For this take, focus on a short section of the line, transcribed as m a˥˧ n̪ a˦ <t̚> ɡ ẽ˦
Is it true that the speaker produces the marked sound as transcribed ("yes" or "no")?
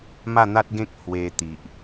yes